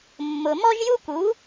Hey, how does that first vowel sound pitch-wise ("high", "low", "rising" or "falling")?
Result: low